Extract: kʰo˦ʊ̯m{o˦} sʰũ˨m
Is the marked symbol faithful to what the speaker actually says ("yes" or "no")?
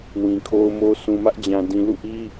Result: yes